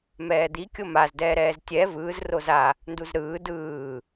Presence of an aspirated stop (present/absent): absent